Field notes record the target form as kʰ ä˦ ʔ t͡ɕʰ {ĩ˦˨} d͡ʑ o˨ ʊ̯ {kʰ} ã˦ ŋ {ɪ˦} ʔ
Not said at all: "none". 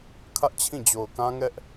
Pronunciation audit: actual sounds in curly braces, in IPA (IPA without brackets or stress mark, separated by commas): ĩ˦˨, k, ɛ˦